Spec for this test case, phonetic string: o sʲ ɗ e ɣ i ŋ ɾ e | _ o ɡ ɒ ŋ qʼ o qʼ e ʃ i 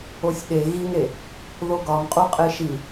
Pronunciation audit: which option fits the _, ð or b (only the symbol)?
ð